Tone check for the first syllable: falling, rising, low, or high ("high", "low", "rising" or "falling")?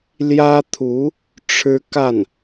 high